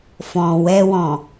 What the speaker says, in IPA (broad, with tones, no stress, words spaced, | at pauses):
fɔ̃˨ wɛ˧wɔ̃˨